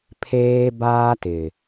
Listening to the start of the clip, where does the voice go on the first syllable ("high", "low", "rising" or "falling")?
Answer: high